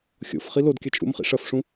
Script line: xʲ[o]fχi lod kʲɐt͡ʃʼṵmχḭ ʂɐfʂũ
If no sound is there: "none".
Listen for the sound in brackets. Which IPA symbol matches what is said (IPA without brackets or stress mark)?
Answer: o̰